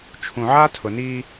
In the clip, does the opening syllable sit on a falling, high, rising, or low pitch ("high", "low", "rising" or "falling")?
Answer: low